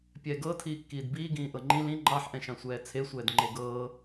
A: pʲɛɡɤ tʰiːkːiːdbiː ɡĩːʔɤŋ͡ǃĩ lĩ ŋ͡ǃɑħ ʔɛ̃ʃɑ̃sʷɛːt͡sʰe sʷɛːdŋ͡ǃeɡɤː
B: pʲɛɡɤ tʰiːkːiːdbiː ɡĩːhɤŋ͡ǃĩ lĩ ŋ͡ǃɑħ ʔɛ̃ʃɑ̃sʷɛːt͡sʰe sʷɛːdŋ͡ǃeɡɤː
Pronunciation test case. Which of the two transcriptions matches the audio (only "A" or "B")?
A